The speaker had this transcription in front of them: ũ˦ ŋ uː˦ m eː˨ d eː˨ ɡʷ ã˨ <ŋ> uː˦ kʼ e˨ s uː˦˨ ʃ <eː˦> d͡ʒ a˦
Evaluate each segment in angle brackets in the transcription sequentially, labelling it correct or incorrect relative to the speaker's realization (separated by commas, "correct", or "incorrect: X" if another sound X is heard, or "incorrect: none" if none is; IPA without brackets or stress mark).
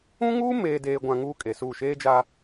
correct, correct